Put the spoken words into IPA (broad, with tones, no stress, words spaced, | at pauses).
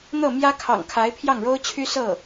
n̪ɤ˥˩mjä˥ kʰɑ̰˨˩ŋkʰa˧˥ɪ̯ pʰjɑ˥˩ŋɻo˥ʊ̯t͡ɕʰy˥ sɤ˥˩